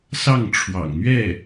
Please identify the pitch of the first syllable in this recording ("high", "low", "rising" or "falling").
falling